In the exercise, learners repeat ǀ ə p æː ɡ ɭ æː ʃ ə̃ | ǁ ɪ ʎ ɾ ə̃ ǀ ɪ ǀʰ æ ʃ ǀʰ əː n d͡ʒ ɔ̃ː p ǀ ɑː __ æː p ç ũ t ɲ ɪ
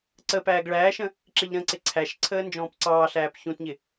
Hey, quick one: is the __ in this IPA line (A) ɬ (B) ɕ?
A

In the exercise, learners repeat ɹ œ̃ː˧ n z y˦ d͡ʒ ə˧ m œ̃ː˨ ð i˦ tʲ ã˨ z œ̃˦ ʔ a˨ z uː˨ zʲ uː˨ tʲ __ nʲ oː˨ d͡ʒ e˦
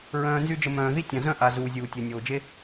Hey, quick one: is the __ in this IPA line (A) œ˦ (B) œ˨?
B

